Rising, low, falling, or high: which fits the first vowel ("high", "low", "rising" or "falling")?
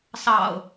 low